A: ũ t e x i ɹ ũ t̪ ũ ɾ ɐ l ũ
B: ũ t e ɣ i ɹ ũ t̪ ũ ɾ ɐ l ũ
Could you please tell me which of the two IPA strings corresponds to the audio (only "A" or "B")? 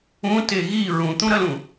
B